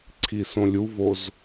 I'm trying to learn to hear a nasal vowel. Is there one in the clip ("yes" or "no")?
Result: yes